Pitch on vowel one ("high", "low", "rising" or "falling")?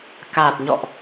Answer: low